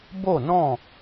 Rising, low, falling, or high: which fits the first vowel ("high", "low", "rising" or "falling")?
falling